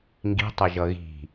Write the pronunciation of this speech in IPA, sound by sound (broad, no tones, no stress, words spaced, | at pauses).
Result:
ŋɡi̤tˤɛʒʌ ɣi̤